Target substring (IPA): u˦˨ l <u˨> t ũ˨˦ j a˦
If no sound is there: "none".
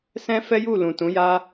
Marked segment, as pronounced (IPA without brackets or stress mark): ũ˨